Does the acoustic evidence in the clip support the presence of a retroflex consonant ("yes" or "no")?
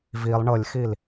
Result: yes